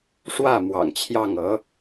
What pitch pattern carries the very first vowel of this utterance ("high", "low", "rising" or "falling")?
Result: falling